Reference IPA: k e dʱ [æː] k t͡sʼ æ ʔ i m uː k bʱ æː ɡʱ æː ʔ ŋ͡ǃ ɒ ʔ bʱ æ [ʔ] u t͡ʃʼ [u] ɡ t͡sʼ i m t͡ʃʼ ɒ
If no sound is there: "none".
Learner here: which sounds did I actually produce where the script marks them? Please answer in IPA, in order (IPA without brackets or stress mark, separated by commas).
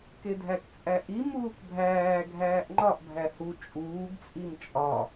æ, h, uː